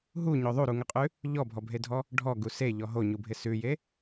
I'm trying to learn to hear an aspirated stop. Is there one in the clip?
no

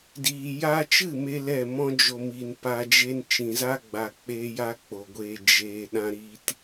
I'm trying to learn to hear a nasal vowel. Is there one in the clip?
yes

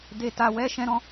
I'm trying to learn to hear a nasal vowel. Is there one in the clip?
yes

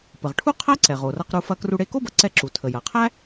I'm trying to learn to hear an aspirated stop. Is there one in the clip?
yes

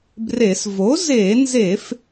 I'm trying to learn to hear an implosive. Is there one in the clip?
no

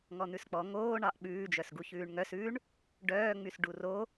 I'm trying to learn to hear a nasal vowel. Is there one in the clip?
no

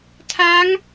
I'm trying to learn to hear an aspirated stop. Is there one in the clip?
yes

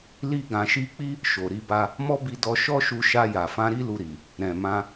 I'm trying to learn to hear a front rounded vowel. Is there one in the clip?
no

